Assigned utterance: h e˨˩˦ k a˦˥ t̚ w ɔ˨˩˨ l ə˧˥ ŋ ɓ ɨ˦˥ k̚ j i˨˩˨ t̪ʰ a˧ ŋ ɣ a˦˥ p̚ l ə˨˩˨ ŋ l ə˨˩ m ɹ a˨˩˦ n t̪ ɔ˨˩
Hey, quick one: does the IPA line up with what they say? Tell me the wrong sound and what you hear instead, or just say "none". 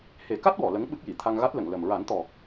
p̚ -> t̚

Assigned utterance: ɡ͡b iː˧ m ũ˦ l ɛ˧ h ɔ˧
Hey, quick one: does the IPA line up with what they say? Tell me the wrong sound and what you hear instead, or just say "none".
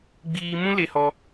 ɛ˧ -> e˧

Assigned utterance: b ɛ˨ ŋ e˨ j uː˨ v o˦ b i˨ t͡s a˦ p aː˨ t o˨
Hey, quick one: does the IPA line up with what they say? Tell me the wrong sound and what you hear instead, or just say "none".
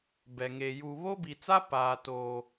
v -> β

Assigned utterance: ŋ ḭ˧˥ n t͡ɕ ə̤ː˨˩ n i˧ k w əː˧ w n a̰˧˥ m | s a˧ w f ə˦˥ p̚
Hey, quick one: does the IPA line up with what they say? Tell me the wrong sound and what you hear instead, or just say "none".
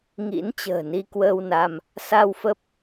a̰˧˥ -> a˧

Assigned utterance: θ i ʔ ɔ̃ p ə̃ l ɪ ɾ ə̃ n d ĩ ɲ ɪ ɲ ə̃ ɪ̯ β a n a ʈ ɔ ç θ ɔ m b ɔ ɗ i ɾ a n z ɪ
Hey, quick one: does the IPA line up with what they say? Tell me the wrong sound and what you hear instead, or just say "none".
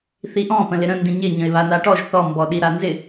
ç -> ʒ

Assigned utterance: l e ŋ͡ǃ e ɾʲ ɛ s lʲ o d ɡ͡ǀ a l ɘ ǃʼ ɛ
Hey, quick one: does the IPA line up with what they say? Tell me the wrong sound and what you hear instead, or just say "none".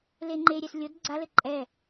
none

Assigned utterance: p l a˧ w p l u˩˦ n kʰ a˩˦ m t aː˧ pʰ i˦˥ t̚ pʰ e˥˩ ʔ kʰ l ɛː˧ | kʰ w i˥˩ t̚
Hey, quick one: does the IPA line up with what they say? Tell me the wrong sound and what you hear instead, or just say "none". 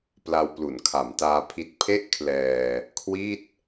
none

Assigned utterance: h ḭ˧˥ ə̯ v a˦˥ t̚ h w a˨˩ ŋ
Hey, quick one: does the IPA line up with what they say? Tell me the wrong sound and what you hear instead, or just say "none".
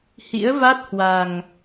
none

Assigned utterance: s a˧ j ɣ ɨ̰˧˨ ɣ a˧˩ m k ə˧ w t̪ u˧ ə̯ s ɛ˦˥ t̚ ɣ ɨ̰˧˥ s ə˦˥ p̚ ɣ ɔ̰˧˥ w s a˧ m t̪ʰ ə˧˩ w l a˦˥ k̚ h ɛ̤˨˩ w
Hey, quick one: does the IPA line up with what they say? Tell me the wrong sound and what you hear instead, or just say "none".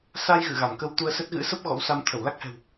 none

